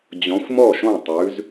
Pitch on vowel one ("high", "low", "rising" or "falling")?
rising